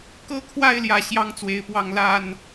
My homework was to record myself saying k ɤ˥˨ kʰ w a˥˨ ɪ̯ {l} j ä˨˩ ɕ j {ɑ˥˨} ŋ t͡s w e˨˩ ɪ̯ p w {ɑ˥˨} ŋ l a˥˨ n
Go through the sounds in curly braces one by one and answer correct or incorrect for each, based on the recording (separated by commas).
correct, incorrect, correct